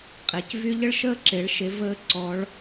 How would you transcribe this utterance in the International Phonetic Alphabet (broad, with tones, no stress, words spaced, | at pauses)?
qʼe˩cvy˥ ʎə˥ɭʃəː˥ǁe˩˧ɭ ʃe˧˥vəː˥ǀɔ˧˥ɭ